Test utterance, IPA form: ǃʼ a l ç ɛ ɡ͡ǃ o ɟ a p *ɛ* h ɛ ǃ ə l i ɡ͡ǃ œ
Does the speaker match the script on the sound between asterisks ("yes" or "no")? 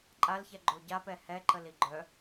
yes